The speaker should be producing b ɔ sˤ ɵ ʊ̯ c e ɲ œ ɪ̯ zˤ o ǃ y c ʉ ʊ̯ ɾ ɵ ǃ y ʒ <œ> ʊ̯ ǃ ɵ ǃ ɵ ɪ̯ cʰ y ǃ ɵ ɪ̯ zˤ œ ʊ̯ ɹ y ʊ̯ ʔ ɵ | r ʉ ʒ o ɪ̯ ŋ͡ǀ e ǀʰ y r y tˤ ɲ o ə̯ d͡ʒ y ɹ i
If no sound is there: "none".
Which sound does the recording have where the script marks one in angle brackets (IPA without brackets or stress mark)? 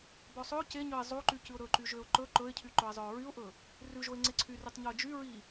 ø